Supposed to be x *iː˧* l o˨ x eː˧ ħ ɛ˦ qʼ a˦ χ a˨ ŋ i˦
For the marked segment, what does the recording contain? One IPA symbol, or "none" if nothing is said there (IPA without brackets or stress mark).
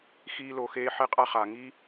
iː˧